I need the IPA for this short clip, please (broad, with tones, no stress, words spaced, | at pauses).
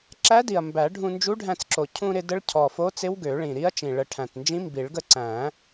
ǁæ˧˥di˨˩ɐ̯ mbæ˨˩˦ ɖʱũ˧nd͡ʒu˧˥ɖʱæ̃˧t͡s ǁo˨˩cʰũ˧ɾɪ˧ də˧˥ɭcʰɔ˨˩fo˧˥t͡sɪ˧˥w ɡø˨˩˦ɭĩ˨˩ɾi˧˥ɐ̯t͡ʃĩ˨˩ ɭə˧ ʈʰæ̃˨˩tnd͡ʒĩ˧˥mbi˨˩˦ɭ ɡə˧ǀæ̃˨˩˦